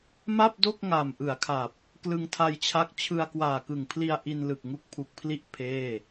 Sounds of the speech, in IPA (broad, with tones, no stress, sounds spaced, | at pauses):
m a˥˩ p̚ d o˥˩ k̚ ŋ a˨˩ m ʔ ɯ˩˦ a̯ kʰ a˨˩ p̚ | k l ɯ˧ ŋ tʰ a˧ j t͡ɕʰ a˦˥ k̚ t͡ɕʰ ɯ˧ a̯ k w aː˨˩ k ɯ˨˩ ŋ pʰ l i˧ a̯ ʔ i˧ n l ɯ˨˩ k̚ ŋ u˦˥ k̚ pʰ u˨˩ k̚ pʰ l i˥˩ ʔ pʰ eː˥˩